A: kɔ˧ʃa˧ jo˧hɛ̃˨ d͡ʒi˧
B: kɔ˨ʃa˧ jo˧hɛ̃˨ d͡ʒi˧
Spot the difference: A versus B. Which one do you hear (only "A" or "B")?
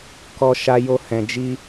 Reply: A